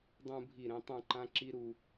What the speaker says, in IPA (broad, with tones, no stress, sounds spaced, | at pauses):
dˤ ũ˧ bʱ i˧˩ ɾ ẽ˧ tˤ ũ˧˩ ǃ ã˧ ǁ i˧ ɾ u˩